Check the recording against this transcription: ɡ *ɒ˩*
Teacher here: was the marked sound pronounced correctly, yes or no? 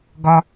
yes